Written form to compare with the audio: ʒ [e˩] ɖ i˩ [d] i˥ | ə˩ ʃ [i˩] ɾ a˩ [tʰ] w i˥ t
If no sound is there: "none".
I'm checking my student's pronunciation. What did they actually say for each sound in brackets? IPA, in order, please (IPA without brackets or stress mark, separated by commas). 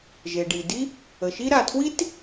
e˩, d, i˦, tʰ